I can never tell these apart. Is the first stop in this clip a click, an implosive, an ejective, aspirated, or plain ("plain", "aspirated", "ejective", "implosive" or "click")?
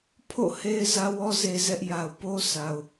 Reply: aspirated